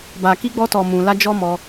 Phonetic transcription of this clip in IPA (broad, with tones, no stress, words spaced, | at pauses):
ba˨ki˧ɡ͡bɔ˧tɔ˨ mũ˨la˧ d͡ʒɔ˦mɔ˧